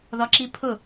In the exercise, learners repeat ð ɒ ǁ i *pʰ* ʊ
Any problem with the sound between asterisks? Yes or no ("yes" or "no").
no